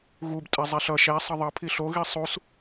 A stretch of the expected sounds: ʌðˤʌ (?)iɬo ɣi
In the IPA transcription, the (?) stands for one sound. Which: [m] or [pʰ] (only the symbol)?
pʰ